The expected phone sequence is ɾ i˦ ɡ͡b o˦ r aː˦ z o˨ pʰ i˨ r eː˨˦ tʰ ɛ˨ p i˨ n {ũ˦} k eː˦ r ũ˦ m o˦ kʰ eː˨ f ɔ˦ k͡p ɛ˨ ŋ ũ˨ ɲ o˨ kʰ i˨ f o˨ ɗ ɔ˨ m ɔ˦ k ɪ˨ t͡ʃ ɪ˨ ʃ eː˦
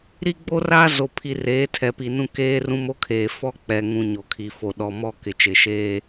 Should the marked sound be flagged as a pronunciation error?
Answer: no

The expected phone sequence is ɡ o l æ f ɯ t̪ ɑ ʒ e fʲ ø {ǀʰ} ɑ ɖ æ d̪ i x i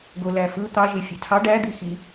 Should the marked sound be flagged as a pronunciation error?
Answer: yes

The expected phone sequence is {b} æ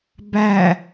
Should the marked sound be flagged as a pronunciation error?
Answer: no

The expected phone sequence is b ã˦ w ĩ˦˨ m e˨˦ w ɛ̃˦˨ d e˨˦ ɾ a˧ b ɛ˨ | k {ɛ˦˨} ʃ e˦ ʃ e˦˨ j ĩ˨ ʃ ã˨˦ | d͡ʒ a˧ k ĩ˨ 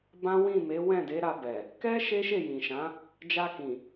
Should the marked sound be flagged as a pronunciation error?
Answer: yes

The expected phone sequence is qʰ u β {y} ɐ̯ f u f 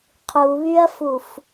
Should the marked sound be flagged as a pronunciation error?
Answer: no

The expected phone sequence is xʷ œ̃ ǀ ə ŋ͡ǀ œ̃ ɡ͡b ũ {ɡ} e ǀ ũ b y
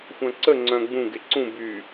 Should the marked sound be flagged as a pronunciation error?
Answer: no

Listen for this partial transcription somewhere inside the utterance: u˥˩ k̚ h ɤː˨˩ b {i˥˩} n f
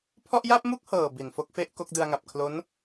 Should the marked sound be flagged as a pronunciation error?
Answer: yes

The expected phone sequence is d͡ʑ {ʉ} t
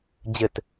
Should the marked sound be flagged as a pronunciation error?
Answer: yes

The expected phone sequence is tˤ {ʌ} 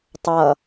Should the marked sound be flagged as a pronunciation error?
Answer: no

